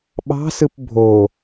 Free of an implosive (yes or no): no